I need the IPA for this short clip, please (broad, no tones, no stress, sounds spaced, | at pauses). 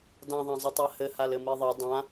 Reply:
d ã ðˤ ã zˤ i tˤ a h ɘ h a l ɘ m i ðˤ ɘ dˤ ã